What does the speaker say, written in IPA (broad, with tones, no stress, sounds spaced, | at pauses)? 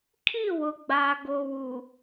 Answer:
kʰ i˦˨ w ʊ˨ ɡ͡b aː˨ ɡ o˨ w u˨